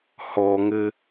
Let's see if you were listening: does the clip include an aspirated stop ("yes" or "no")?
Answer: no